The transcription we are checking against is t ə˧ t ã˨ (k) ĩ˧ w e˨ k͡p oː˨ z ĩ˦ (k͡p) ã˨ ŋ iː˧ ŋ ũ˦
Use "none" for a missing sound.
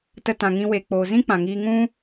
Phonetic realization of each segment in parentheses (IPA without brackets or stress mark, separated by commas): ŋ, k͡p